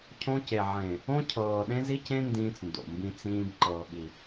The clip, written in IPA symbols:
cʰõ˦ce˨ ʕẽ˨ | õ˦ cʰɤː˨ɗẽ˦zi˦cẽ˦ ndĩː˦t͡sndo̰˨mbĩ˦ t͡sĩː˦b ǃɤː˨ɓi˨

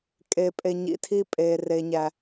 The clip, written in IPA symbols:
kʼe˨pʼe˨ɲḭ˨tʰi˦ pʼe˨re˨ɲæ˨

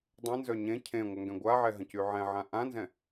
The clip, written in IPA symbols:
dˤə̃nzœ ɲẽ cʰẽ ŋʷœŋɡɛ̃ɡʷaʕɛ ɦə̃cyʕɛ̃ʕã ʔãnzɛ̃

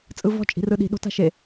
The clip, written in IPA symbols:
t͡sʼɯvɔ̤ t͡ʃʼi̤rɯɗi̤ ɗo̤ta̤ʃe

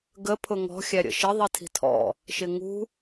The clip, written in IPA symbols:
ɡə pʰʊŋɔ̤ xʲæɾʲə̰ʃɪ ðˤitʰi̤tʰɔ̰ | ʃɪŋṳ

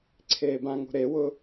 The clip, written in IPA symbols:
ǀʰeːbãŋo̤ ɾewʊ

